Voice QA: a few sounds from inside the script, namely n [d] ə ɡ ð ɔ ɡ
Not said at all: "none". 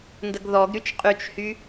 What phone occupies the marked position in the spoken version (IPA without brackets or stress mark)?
d